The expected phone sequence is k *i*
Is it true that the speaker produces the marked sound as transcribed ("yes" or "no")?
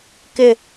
no